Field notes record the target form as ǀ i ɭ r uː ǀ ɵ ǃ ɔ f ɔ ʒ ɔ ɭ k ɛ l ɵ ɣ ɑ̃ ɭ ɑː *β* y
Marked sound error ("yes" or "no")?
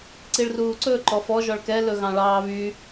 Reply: no